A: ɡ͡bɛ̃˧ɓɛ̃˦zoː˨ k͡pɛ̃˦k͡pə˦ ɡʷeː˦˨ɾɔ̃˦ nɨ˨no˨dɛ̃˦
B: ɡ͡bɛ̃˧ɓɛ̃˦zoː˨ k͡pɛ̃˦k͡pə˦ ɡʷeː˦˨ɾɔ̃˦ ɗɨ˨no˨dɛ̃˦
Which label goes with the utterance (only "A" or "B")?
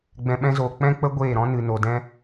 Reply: A